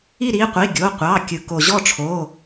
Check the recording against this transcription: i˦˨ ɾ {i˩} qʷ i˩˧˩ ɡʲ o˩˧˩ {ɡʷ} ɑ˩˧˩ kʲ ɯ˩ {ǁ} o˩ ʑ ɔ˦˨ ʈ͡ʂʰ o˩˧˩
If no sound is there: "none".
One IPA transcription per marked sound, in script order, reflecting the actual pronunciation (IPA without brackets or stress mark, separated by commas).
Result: i˩˧˩, qʷ, k